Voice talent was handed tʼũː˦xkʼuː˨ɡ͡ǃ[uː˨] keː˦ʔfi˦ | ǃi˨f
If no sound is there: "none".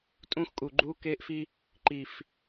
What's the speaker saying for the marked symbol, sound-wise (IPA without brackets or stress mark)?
uː˦